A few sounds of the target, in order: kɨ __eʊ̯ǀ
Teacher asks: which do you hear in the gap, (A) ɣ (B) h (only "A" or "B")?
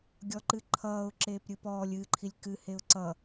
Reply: B